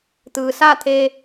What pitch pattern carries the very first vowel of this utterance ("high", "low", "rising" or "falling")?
low